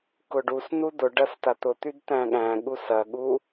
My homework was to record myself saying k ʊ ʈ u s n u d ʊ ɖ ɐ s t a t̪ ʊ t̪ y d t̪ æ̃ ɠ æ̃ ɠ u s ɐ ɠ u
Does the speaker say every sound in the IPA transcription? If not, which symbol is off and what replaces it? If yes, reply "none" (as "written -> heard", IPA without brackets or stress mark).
ʈ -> ɖ